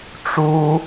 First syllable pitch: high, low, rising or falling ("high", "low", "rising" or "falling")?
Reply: high